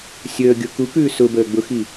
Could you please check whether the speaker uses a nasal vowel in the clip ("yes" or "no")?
no